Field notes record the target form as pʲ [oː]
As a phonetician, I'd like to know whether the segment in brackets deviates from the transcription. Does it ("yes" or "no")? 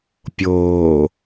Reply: no